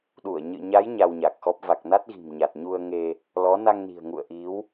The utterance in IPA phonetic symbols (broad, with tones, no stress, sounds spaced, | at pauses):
ɗ u˧˩ ə̯ ɲ ɨ̰˧˨ ɲ a˨˦ j ɲ a˧ w ɲ a˨˩ k̚ x ɔ˦˥ p̚ v a˨˩ k̚ n a˦˥ t̚ ɣ i̤˨˩ m ɲ a˨˩ t̚ ɲ u˧ ə̯ ŋ e˧ | l ɔ˨˦ n a˧ ŋ n i̤˨˩ ə̯ ŋ ṵ˧˨ ə̯ ʔ i˨˦ w